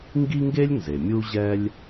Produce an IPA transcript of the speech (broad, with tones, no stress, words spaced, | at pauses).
ŋɡi˥ŋɡe˥lʲ nze˩mʲu˥ʑɛ˥lʲ